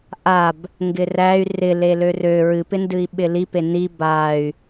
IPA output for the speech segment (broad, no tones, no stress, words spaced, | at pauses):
ʔab | ŋɡɪræy̯ rɪ lelørø ɹɨpɪndɨi̯ ɓɪlipe ni bay̯